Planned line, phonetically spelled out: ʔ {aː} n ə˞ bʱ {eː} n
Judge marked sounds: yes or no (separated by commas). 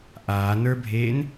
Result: yes, yes